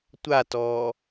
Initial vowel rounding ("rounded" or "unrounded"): unrounded